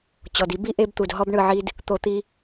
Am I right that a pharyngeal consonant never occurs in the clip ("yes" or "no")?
no